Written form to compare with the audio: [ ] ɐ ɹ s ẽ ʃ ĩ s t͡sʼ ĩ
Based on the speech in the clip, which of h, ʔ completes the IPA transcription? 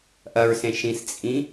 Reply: ʔ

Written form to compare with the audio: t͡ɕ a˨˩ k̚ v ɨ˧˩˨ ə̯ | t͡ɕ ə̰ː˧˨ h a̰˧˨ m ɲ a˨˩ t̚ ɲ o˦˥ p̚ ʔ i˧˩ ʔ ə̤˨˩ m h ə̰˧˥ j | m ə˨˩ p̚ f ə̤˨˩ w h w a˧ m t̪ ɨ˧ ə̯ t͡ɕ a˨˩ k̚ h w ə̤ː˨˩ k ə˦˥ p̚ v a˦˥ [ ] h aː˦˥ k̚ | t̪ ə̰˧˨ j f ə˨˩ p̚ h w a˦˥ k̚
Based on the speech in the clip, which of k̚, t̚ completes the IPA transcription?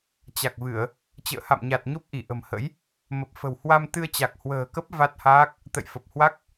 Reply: t̚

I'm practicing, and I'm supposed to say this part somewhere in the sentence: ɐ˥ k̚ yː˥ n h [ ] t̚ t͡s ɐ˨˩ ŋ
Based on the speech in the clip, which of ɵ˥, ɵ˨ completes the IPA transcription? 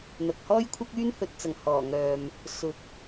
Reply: ɵ˨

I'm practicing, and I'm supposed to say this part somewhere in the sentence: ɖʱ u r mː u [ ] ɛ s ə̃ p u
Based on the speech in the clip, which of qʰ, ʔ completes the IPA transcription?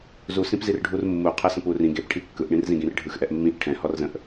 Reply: qʰ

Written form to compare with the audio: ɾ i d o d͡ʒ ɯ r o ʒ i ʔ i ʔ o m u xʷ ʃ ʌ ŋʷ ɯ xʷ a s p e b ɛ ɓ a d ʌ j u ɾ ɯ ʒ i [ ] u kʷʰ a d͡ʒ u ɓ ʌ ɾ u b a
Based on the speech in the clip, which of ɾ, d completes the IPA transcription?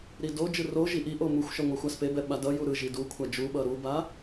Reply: d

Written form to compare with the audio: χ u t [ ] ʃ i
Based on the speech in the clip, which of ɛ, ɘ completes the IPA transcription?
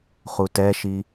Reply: ɛ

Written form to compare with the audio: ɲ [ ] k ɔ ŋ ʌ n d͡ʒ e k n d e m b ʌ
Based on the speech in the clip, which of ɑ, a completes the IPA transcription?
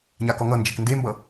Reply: a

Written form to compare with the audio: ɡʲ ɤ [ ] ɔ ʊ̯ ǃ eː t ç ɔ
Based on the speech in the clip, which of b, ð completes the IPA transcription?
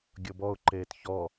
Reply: b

